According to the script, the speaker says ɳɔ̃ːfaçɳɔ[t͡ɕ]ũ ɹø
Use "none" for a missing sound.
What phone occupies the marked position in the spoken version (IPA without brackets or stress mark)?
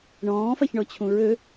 t͡ɕʰ